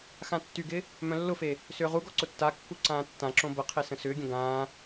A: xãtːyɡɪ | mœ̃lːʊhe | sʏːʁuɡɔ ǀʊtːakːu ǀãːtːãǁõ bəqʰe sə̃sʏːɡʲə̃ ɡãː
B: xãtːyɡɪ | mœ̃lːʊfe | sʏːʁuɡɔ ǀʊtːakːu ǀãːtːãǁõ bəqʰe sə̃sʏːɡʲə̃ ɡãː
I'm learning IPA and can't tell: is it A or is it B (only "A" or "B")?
B